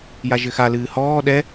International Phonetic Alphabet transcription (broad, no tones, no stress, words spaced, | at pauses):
jaʒɘxalɨː hɔː ɗɛ